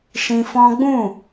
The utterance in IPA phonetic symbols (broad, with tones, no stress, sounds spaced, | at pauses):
ʃ ĩ˧ f ɔ̃˦ ɡ͡b ũ˦˨